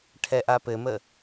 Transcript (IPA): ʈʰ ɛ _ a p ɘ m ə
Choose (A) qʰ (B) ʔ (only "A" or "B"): B